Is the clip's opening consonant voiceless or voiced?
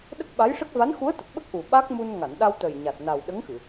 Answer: voiced